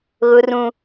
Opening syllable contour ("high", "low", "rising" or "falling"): high